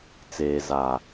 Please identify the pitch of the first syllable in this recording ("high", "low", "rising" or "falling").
low